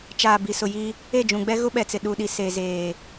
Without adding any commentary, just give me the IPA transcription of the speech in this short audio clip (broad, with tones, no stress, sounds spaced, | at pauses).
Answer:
t͡ʃ aː˨ b i˨ s ʊ˨ j i˦ | e˦˨ d͡ʒ ũ˨ ɡ͡b ɛ˦ ɣ ʊ˦ ɓ ɛ˨ t͡s ɪ˨ ɗ u˨ ɗ i˨ s e˨ z eː˨